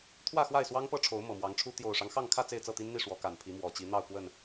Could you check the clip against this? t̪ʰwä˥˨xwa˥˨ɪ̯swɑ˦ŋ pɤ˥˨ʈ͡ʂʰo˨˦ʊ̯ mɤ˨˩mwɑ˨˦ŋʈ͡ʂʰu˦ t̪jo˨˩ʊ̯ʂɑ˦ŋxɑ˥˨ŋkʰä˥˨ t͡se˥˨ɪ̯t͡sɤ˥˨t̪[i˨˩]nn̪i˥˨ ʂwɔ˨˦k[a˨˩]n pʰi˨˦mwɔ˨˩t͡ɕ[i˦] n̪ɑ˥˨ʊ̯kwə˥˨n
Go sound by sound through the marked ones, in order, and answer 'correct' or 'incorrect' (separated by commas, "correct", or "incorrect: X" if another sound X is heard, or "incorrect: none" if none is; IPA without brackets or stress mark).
incorrect: i˦, correct, incorrect: i˨˦